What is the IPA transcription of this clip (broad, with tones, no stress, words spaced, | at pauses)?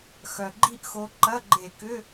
xœ˨˩ɡ͡ǃi˥˧ʔxo˨˦ ǃɐ˧˥˧ɡ͡ǃe˧˩˧kʏ˧˥˧